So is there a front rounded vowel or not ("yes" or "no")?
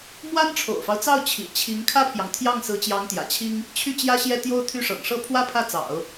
yes